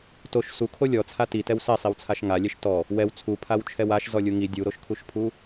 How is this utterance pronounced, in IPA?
t o ʃ s u kʰ o lʲ ɔ t͡sʰ a t i t ɛ w s ɛ sˤ i w t͡sʰ a ʃ ŋ a lʲ ɛ ʃ t ɔ | w ɛ w t͡sʰ u pʰ a w t͡ʃʰ ɛ w a ʃ z ɔ lʲ u ŋ i dʲ u ɾ o ʃ kʰ u ʃ pʰ u

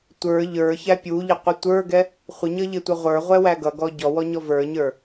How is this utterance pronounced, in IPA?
tʷ ə˞ ʎ ə˞ ç æ pʲ u ʎ ɪ qʷ ɪ tʷ ə˞ ɡ ɛ | χʷ ɪ ɲ ʌ ʎ ɪ tʷ ʌ ʁʷ ə˞ ʁʷ ɛ w æ ɡ ʌ ɡ ɔ ɟ ɔ w ɔ ɲ ɔ v ə˞ ɲ ə˞

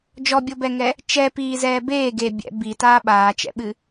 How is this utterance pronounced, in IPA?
d͡ʒ ɔ bʲ o b ɛ ŋ ɛ | t͡ʃ ɛ p iː z ɛː b eː ɡ e bʲ ɛ̰ b i t aː ɓ aː t͡ʃ ɛ̰ ɓ ɨ

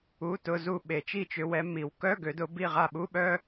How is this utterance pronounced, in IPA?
u˧˥˧ t ʊ˧˥˧ z u˦˨ ɓ e˨˩˦ t͡ʃ i˦˨ t͡ʃ ʏ˨˦ w ɛ˨˦ m i˨˩˦ w k œ˧˥˧ ɡ ø˨˩˦ d ʊ˨˩˦ b i˦˨ ʁ a˦˨ ɓ u˧˥˧ ɓ œ˥

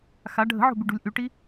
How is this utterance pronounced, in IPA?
x a ɖʱ ə̤ ʕ o̤ b y ɖ ṳ lʲ ʔ y ʈ i

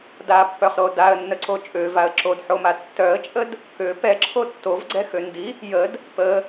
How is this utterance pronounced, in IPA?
d a pː œ χ ɾ o d a ə̯ nː ə ǀ o t͡ʃʼ ø v a ə̯ ǁ o d ħ o m a tː œ ə̯ t͡ʃʼ ə d | k ø p ɛ ǁʰ o tː o v ɡ͡ǀ ɛ x ø n d i | j ə d | p ə

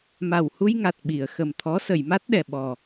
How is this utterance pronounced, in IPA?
m a˨˩ w h u˧ j ŋ a˨˩ t̚ ɓ i˨˩˨ ə̯ x ə˨˩ m t̪ʰ ɔ˧˥ s ə˨˩˨ j m a˦˥ t̚ ɗ ɛ˨˩ ɓ ɔ˨˩

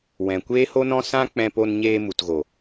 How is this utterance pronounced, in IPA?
w ɛ̃˨ kʷ eː˦ h o˦ n ɔ̃˦ s ã˦ k͡p ɛ̃˧ p o˧ n ɲ eː˧ m u˨ t ɣ o˨

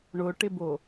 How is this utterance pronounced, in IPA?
ɳ ʊ ʈ ɪ b o

